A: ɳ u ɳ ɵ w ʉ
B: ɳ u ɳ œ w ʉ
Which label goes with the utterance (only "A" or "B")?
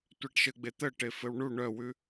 B